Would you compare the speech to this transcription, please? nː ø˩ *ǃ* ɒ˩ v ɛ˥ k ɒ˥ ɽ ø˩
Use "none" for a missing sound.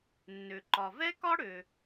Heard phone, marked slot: ǃ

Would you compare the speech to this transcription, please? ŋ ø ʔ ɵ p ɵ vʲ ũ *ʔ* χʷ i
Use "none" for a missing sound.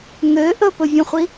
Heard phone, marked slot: none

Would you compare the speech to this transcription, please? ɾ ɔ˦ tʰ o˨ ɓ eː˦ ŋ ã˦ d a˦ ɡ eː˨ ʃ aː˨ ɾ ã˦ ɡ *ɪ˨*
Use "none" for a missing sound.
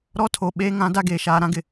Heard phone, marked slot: ɪ˨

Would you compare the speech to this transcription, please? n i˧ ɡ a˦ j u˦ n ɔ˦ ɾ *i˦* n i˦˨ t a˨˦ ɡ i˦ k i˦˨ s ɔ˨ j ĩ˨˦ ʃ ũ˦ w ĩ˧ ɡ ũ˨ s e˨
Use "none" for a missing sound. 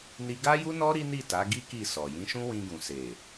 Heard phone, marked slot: i˦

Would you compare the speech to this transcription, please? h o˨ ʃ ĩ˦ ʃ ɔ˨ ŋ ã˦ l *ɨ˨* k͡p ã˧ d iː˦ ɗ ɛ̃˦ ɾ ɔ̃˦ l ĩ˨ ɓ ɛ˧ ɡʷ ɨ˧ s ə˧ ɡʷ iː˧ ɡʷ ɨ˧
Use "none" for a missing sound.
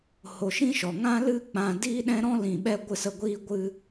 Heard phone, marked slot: ɨ˦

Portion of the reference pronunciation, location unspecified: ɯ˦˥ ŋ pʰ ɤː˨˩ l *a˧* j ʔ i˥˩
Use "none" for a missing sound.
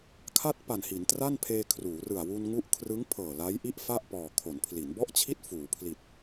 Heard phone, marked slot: a˦˥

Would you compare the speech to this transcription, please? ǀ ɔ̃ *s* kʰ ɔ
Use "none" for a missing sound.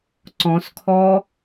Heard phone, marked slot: s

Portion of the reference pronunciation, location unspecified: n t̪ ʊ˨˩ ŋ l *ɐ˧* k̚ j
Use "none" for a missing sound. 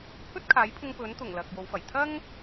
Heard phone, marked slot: ɐ˨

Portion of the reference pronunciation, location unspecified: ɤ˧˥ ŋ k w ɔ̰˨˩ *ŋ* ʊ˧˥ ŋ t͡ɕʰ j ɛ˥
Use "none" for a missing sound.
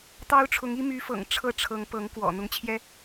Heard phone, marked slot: n̪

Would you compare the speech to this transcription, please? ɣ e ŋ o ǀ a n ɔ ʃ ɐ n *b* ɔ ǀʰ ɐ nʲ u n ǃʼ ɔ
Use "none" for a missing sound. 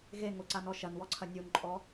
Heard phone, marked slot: w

